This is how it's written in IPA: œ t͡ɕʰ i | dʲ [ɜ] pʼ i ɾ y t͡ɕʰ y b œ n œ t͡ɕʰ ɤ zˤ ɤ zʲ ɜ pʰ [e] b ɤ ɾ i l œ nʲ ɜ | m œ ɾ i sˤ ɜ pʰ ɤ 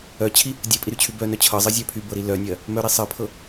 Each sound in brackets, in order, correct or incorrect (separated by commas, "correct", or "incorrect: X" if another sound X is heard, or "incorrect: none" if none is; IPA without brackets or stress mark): correct, incorrect: y